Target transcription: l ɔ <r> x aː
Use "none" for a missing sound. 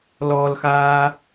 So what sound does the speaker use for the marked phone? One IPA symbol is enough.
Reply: l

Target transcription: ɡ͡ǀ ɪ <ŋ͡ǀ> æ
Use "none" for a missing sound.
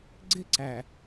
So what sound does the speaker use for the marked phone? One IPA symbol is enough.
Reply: ǀ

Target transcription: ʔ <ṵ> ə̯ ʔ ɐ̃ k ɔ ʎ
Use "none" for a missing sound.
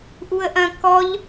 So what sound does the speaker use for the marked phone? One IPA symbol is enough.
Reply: u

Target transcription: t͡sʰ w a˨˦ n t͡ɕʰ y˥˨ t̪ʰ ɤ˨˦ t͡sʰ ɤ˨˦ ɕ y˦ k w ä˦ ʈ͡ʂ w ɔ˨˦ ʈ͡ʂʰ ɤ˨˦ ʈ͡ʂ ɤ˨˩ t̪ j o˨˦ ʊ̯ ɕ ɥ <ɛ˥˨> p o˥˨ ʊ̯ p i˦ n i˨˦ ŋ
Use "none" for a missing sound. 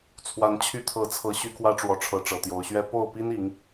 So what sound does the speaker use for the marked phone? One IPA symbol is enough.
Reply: ɛ˦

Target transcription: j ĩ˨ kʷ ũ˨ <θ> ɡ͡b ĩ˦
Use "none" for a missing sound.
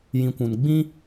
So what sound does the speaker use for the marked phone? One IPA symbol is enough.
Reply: n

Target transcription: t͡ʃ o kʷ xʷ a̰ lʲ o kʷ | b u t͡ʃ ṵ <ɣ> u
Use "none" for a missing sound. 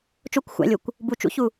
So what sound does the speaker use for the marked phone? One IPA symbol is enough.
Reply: ç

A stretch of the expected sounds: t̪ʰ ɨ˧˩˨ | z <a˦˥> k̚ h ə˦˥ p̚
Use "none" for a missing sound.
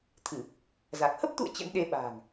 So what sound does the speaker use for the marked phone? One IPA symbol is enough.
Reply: a˨˩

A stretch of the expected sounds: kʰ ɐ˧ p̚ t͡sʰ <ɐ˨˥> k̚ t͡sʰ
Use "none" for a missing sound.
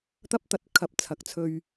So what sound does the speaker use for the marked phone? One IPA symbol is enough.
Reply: ɐ˨˥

